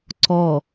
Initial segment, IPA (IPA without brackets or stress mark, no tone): ǀ